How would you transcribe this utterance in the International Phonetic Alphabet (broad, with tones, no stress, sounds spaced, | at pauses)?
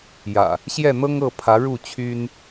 j ä̰˨˩ | ɕ j ɛ˥˨ n̪ ɤ˦ ŋ ɤ˥˨ pʰ ä˨˦ ɻ u˥˨ t͡ɕʰ y˦ n